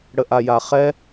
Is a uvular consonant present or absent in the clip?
present